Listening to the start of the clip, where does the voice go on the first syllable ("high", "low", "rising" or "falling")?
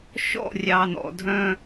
falling